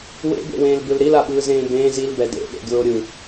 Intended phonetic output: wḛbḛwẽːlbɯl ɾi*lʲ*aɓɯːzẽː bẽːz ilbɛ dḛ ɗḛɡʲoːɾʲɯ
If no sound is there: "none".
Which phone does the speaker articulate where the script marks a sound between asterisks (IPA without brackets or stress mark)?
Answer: l